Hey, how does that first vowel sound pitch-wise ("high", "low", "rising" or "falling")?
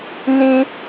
high